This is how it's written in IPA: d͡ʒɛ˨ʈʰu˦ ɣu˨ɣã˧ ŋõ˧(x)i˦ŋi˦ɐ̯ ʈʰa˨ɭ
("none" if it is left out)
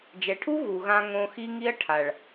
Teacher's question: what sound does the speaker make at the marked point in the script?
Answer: x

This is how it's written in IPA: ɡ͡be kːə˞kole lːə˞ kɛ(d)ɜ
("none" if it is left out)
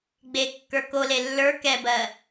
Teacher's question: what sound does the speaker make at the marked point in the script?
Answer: b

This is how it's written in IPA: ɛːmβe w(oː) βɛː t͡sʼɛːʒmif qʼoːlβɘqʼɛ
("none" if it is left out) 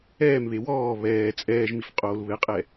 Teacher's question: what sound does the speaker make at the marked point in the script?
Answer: ɔː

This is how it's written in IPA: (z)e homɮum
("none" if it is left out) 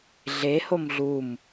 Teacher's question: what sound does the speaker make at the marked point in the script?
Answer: ɮ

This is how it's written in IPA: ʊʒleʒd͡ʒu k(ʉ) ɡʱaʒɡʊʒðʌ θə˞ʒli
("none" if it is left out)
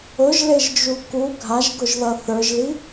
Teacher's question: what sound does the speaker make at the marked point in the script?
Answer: u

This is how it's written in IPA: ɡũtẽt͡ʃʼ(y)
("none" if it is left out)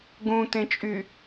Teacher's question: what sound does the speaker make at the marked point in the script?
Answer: y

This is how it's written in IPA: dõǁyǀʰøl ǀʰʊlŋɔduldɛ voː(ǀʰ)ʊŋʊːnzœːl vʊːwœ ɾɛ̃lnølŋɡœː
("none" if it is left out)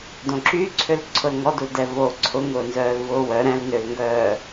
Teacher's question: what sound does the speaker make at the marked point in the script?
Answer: ǀʰ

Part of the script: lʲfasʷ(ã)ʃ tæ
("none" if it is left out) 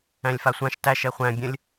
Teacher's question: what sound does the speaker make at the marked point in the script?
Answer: ã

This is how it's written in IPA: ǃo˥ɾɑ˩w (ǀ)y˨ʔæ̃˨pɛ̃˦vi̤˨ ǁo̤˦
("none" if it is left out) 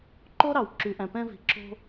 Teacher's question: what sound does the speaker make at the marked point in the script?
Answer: ǁ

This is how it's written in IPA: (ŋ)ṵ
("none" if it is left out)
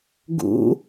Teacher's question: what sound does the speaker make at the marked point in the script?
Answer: ɡ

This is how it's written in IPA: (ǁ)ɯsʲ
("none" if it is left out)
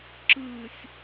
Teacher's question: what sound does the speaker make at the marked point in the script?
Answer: ǁ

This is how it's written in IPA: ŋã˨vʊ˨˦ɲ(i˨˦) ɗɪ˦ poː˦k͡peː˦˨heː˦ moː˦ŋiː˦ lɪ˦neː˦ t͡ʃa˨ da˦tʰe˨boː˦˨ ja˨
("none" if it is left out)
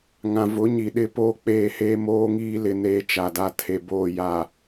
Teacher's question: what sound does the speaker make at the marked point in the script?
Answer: i˨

